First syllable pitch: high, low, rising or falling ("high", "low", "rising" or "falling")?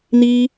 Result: high